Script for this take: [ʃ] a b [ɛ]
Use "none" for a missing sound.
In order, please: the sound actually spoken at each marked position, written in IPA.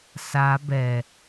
s, ɛ

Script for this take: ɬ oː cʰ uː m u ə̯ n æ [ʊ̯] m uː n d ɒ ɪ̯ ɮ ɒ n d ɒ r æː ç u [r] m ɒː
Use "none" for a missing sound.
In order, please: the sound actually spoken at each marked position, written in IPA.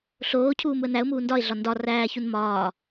ʊ̯, n

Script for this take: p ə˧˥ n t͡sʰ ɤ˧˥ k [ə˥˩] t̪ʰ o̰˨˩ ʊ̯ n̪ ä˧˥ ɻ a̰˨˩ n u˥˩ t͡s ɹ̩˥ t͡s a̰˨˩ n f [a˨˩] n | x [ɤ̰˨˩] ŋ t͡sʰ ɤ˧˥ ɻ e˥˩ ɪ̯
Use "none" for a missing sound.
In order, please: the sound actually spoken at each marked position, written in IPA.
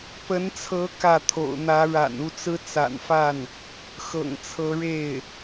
ä˥˩, a˥˩, ɤ̰˨˩

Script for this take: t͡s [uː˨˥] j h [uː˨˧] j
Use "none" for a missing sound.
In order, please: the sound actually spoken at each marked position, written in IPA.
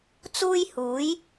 uː˥, uː˨˥

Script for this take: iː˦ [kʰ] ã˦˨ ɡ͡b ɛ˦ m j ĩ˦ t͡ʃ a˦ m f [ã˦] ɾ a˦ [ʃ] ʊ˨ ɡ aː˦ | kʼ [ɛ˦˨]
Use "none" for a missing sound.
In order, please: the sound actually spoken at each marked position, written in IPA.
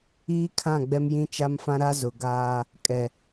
kʰ, ã˦, z, ɛ˨

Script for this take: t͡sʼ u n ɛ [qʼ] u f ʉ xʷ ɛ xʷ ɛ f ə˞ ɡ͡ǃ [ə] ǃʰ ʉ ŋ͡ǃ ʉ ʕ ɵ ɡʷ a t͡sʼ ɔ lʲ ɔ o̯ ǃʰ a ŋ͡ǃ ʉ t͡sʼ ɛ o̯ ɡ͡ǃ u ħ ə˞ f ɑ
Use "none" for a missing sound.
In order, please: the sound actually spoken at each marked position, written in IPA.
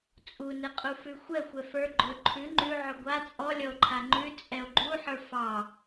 qʼ, ɵ

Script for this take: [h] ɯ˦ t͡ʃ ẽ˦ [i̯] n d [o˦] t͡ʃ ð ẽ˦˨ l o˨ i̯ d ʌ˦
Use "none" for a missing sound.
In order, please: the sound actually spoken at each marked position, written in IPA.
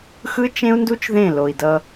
x, u̯, u˦

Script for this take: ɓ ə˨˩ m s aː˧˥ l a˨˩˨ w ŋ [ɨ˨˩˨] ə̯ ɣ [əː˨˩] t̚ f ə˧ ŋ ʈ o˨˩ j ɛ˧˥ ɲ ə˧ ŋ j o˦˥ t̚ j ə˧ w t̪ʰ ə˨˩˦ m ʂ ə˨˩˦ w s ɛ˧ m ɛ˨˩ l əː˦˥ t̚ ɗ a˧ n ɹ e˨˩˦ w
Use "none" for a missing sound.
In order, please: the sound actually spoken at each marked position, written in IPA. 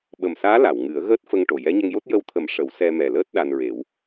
ɨ˨˩˦, əː˦˥

